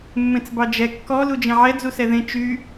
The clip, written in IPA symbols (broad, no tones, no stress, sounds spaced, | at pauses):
mː ẽ t͡s b ɑ d͡ʒ ɛ kː ɔ l u d͡ʒ ẽ ʕ ɛ d͡z u s ɛ ð ẽ t͡ʃ y